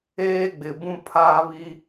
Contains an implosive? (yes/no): no